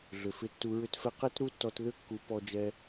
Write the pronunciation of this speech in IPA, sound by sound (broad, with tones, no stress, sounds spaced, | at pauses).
ɮ ʏ˨ f ɪ˧ tː u˧ ɹ ʏ˧ t f ɛ˧ q ɛ˦ t ɾ u˦ tː ɔ˧ t ð ʏ˦ kː u˧ p ɔ˧ d͡ʒ ɛ˧